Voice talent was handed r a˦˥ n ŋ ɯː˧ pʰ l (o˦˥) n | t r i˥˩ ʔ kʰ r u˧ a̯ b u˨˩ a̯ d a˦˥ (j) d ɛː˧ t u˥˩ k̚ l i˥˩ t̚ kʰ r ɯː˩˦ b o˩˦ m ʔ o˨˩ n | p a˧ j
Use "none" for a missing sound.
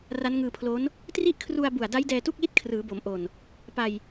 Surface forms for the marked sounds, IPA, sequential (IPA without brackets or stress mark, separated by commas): o˦˥, j